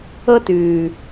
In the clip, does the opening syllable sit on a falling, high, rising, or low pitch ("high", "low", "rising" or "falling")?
high